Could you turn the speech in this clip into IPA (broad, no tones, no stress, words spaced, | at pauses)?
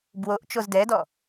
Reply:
bwoʔ t͡ʃozdɛdɔ